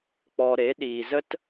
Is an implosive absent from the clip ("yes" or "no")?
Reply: no